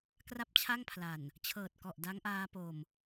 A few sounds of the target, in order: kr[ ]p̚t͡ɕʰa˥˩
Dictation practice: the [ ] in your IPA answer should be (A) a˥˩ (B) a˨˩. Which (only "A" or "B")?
A